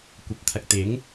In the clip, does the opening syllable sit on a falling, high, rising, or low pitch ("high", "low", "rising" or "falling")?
rising